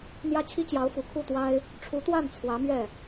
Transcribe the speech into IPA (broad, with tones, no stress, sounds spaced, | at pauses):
n̪ j ä˥ t͡ɕʰ i˥ t͡ɕ j ɑ˧˥ ʊ̯ f u˨˩ kʰ u˥˩ t̪ w a˥ ɪ̯ | ʈ͡ʂʰ u˧˥ t̪ w a˥˩ n t͡sʰ w ä˧˥ m ɥ ɛ˥˩